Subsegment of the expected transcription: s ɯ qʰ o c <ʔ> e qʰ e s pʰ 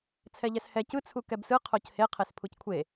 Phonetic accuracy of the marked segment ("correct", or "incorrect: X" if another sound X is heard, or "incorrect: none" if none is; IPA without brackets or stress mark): incorrect: h